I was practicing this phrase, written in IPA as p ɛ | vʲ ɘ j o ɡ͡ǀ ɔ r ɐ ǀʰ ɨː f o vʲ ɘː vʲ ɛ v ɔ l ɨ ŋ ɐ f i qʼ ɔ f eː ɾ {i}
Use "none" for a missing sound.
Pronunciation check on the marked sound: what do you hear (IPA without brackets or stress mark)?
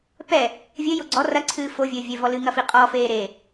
e